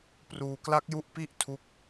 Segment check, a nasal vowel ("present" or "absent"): absent